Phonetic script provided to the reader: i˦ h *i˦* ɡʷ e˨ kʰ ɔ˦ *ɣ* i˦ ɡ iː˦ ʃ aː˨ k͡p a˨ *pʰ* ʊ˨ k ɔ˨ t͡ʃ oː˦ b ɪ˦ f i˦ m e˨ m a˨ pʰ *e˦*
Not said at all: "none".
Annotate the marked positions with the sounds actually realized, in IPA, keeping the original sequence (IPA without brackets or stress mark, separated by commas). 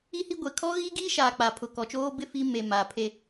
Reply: i˦, ɣ, pʰ, e˦